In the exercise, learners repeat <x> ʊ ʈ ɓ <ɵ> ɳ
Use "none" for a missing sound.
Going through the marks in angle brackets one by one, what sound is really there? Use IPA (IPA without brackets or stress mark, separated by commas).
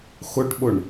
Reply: x, ʊ